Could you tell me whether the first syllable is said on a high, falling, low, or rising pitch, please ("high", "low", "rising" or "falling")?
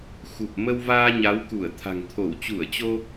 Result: low